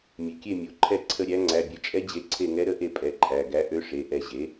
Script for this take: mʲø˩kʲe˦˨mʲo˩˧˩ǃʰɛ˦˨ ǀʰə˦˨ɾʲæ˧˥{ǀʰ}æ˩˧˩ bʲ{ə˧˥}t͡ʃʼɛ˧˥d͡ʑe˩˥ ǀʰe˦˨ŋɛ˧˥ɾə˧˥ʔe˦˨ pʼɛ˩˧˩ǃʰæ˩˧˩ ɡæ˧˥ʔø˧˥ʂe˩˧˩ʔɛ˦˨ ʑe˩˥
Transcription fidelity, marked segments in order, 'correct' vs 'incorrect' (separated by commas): incorrect, incorrect